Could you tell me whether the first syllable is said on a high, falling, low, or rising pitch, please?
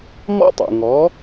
high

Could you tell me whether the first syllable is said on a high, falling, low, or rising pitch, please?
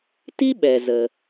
high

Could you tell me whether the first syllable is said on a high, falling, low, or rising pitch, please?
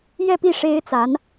falling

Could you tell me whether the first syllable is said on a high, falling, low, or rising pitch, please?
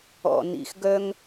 low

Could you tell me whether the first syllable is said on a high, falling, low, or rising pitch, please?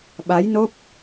rising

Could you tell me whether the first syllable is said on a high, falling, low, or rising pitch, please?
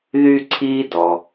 high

